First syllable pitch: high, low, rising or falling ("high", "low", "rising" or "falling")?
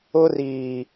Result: high